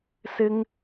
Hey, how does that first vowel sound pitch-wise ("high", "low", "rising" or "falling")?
high